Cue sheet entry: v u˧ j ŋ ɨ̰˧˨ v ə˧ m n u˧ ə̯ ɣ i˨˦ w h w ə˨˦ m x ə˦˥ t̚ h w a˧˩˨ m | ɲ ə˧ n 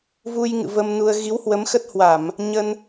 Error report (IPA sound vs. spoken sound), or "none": none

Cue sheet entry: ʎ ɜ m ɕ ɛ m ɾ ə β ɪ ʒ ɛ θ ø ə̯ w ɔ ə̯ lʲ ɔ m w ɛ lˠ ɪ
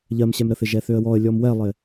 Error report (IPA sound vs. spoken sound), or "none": β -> θ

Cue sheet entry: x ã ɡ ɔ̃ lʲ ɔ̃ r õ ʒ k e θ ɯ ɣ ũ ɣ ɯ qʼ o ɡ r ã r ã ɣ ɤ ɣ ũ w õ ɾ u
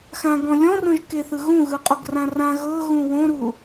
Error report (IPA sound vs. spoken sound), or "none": none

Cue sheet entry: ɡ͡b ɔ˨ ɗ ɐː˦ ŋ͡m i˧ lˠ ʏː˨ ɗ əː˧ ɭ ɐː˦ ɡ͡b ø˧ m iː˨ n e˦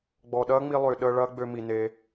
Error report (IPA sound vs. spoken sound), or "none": iː˨ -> i˨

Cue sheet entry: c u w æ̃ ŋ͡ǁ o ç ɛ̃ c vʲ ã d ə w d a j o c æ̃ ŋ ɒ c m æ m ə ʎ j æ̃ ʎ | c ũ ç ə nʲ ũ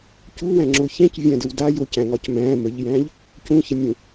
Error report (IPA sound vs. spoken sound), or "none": æ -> æ̃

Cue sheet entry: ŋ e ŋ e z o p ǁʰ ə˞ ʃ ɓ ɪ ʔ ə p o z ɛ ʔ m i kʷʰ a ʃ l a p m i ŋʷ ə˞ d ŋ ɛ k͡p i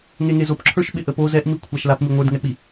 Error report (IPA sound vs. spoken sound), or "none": none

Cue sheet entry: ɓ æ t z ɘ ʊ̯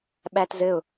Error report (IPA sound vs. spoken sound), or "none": none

